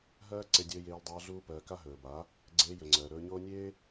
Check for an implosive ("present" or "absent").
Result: absent